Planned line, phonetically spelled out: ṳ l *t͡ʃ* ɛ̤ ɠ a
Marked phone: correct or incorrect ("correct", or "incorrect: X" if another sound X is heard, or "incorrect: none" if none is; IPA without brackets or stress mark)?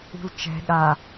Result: correct